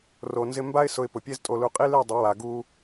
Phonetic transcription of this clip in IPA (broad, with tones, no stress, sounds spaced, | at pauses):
r o˨ n z ɪ˧ m b a˦ ɪ̯ s ʊ˧ ɪ̯ p ʊ˨ pʲ e˧ z tʼ o˨ l u˨ qʼ i˦ l e˦˨ dˤ ɪ˨˦ w a˨ ɡ u˧